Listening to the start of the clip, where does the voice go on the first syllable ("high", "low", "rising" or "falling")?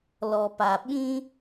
low